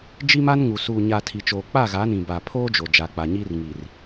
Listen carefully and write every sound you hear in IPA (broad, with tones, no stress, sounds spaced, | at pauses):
d͡ʒ i˦ m a˦ n ŋ u˨ s uː˨ ɲ a˨ tʰ i˨ t͡ʃ oː˨ k͡p a˦˨ ɣ a˨˦ n ĩ˨ b a˨ pʰ oː˦ d͡ʒ o˨ d͡ʒ a˨ k͡p a˨ ɲ iː˦ r ŋ i˨ r